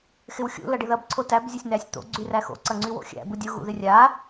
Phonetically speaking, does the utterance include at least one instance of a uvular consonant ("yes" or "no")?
no